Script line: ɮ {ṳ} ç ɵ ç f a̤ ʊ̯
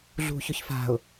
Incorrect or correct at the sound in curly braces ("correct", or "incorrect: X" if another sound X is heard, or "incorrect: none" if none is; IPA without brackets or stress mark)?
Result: correct